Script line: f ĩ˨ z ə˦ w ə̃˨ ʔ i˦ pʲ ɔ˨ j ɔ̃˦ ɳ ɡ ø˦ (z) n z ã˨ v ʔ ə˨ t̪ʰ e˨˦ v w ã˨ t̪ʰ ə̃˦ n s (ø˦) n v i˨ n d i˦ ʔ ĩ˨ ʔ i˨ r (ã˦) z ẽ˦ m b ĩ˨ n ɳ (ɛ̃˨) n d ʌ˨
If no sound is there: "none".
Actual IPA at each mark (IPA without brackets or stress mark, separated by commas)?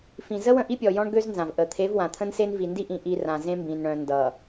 z, e˦, ã˨, œ̃˨